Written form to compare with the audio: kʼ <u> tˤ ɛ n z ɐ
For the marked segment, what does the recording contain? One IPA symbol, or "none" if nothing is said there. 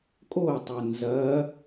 o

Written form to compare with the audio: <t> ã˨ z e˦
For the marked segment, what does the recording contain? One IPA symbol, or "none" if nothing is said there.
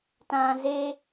t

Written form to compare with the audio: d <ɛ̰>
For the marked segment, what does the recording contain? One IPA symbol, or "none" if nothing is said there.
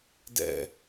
ɛ̰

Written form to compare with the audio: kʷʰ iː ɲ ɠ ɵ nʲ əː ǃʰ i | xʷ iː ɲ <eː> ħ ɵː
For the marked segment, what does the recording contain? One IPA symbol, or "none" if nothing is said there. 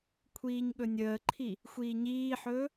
iː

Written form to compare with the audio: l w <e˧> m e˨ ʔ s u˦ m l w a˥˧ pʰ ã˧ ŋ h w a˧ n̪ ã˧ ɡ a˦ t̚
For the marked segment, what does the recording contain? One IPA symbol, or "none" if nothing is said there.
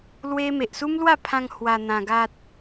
e˦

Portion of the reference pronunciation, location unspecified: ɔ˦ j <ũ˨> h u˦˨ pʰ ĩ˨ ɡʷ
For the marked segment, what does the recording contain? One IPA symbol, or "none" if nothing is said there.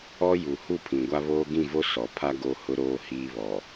u˨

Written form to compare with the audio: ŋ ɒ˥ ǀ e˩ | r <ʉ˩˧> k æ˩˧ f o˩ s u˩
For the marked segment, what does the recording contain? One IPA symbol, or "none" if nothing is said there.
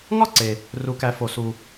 u˩˧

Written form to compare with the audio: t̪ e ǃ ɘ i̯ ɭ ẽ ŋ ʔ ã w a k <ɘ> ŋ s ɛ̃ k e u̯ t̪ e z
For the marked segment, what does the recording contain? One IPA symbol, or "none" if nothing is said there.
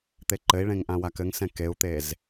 ɘ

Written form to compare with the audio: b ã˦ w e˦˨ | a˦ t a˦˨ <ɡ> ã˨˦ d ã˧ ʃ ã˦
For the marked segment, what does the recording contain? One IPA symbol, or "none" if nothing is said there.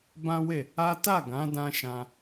ɡ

